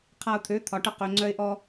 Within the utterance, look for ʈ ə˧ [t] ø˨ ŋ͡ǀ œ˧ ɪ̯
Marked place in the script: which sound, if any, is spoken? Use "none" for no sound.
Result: q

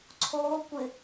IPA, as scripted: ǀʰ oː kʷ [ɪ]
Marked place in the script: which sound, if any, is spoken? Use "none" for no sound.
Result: ɪ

